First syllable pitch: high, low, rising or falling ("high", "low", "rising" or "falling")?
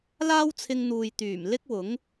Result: high